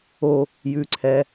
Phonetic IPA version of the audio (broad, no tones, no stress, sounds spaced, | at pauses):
o | j ʉ ǀʰ ɛ